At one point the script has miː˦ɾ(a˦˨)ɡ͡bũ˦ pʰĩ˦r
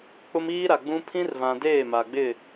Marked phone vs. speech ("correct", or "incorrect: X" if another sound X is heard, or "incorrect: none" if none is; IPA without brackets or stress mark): incorrect: a˨